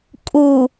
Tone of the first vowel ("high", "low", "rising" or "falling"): low